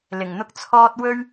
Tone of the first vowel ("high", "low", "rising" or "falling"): low